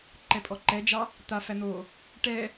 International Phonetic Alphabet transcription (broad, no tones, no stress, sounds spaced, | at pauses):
ǃ ɛ pʼ ɔ ǃ ɛ d͡ʒ ɑ | t̪ a f æ n̪ o | ʈ ɛ